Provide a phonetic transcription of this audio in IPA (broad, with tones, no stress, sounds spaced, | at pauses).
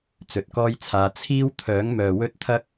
t͡s ɵ˨ t̚ k ɔː˥ j t͡sʰ aː˨˧ t͡sʰ iː˥ w t̪ʰ œː˨˥ ŋ m œː˨ w ɵ˥ t̚ t̪ʰ ɐ˥ k̚